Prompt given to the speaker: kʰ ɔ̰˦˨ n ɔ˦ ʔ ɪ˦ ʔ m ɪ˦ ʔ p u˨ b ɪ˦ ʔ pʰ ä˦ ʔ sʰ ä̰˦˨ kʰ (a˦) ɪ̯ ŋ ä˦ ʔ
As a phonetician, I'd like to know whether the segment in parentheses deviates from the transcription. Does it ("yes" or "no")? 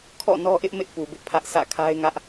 no